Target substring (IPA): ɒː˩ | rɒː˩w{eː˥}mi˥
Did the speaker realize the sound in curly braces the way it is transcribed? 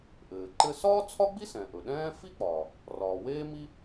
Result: yes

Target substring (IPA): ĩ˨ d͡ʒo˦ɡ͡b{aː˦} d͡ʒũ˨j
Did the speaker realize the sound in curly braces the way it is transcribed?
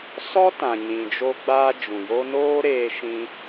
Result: yes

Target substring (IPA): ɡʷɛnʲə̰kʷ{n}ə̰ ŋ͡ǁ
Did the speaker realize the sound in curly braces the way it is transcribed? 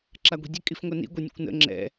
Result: yes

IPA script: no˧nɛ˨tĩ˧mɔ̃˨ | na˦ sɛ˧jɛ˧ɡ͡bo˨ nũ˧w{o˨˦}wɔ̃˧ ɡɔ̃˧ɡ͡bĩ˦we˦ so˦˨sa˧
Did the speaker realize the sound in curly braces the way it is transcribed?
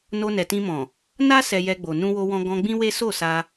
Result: no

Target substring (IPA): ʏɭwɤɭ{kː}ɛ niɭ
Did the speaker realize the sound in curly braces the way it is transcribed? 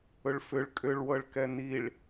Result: no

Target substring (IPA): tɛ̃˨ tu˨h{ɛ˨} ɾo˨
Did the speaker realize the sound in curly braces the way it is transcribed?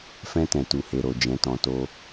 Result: no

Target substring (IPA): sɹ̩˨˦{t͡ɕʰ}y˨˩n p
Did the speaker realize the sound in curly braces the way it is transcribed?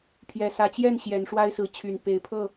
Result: yes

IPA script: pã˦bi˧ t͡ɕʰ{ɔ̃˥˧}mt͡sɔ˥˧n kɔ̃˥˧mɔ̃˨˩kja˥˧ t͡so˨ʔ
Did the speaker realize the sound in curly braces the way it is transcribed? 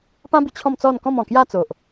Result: yes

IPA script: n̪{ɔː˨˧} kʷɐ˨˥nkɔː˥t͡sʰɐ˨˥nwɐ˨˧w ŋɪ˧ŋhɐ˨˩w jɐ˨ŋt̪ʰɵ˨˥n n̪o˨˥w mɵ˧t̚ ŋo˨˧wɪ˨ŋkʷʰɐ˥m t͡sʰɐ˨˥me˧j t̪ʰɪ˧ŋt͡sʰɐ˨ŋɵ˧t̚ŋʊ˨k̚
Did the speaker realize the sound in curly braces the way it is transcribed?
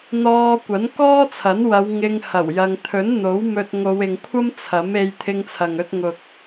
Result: no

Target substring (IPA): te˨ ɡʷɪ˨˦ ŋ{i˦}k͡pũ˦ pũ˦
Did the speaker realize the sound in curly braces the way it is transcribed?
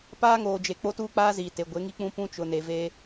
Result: yes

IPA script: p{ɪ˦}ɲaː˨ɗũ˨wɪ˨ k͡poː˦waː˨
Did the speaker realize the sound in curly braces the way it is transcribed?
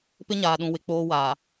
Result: yes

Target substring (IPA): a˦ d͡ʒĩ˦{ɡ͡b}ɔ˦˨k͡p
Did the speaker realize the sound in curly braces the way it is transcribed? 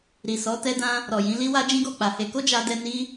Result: no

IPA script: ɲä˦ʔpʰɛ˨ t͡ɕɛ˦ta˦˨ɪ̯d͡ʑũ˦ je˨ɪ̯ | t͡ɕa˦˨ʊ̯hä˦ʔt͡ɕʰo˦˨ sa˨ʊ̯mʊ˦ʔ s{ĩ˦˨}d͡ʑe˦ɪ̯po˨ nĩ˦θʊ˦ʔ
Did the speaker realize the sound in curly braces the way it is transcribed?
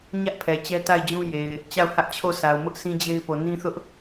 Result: no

